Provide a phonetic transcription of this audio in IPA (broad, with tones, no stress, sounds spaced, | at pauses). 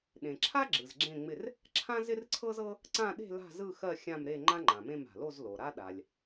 ɗ ẽ˩ ǁʰ a˥ ɡ͡ǁ ɯ˩ z ɡ͡ǁ ẽ˥˨ ŋ͡m ɪ˥˨ r | ǁʰ ã˥ z ɪ˥ r ǀʰ ɤ˥ z ɤ˥ | ǀ ã˥˨ ɗ e̤˥˨ l a̤˥˨ z ɯ˥˨ x ɜ˥˨ xʲ ã˥˨ m ɾ e˥˨ ŋ͡ǃ ã˥ ŋ͡ǃ ã˩ m ẽ˥˨ m a̤˩ l o˥˨ z l o˩ ɾ a˥ ɗ a˩ lʲ